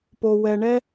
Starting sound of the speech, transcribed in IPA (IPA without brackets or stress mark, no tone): p